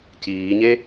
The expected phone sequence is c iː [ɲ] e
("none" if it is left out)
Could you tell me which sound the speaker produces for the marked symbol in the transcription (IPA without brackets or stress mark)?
ɲ